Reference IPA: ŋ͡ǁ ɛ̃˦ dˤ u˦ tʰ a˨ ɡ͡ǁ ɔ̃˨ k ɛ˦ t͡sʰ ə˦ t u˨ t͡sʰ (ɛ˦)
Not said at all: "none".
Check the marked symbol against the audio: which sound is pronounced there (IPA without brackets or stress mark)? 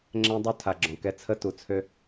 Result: ø˦